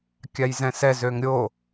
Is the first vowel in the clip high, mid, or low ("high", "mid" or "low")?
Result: low